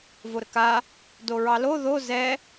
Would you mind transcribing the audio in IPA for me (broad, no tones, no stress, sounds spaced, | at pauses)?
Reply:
v o ɾ ə k a | d o ɹ ɑ l o ð o z ɛ